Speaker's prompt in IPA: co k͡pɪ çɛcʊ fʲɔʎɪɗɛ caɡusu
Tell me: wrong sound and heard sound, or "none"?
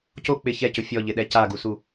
none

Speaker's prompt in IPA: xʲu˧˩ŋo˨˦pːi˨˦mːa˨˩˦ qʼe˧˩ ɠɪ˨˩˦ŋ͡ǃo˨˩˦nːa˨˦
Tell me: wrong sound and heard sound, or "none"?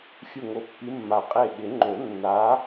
none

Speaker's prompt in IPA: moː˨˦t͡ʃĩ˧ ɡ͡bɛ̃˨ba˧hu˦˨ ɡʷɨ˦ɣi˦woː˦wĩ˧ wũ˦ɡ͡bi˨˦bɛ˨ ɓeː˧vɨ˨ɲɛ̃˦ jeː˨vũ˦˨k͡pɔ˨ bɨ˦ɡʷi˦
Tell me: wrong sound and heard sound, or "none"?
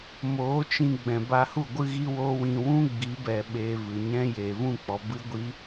none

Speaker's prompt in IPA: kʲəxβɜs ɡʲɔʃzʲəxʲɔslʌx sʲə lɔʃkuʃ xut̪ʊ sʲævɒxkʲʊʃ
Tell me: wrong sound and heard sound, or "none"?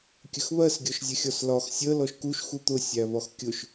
ʌ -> ɒ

